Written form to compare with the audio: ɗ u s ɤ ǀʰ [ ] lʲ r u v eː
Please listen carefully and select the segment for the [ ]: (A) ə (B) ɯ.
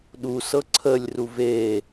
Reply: A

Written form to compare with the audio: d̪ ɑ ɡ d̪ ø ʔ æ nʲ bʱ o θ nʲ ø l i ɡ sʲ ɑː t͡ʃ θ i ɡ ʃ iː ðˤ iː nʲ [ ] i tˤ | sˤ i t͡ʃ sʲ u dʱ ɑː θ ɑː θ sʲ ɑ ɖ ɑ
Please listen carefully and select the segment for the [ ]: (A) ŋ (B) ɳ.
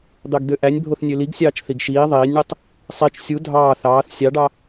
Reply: B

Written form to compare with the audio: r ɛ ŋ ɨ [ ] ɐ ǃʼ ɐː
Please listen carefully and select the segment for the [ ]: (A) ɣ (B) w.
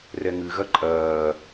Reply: A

